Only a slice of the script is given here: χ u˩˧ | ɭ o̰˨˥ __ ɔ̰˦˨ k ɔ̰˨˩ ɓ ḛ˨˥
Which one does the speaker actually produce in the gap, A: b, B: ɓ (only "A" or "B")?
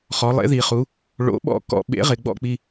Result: B